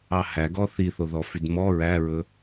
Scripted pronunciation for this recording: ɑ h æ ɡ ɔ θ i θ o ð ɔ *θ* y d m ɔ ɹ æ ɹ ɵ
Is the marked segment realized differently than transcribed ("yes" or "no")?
yes